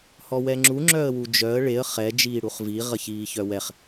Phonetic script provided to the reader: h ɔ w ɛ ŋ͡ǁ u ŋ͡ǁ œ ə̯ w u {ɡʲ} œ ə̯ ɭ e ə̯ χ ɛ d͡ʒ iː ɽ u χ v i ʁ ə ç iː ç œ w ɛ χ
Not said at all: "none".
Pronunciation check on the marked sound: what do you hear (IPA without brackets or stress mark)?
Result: d͡ʒ